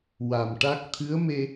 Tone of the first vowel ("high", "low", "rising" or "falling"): low